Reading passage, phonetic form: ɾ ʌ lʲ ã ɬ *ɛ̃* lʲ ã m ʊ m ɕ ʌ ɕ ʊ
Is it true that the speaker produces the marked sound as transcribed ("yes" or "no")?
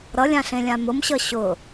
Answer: no